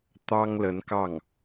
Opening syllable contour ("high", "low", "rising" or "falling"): high